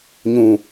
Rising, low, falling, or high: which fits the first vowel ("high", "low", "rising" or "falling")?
low